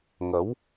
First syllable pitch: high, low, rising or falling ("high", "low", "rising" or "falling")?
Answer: rising